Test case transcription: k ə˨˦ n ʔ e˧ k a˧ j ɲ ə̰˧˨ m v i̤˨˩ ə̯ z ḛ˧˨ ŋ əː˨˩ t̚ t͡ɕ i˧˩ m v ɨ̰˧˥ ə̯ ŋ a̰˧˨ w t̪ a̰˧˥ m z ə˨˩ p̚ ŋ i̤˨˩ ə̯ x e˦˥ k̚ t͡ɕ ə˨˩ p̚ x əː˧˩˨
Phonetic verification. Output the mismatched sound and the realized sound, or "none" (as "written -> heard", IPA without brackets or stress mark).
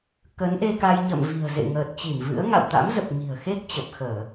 none